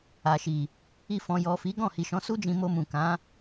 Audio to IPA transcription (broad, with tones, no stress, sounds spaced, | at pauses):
a˨ ʃ i˨ | i˧ f ɔ̃˨ j ɔ˨ f i˨˦ ɡ ɔ̃˦˨ h i˨ ʃ ɔ̃˨˦ s u˦ d͡ʒ ĩ˧ m o˧ m ũ˨ k ã˨˦